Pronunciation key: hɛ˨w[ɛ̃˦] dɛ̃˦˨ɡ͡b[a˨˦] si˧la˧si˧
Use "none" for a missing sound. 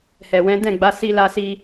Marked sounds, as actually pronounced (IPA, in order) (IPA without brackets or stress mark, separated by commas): ɛ̃˨˦, a˨˦